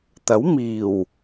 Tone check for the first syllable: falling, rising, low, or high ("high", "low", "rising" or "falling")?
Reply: rising